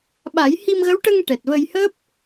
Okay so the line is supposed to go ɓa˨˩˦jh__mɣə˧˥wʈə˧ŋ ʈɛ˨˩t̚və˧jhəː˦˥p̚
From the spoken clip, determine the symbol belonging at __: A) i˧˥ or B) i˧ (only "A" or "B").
B